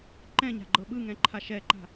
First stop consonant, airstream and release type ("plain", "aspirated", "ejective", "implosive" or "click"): click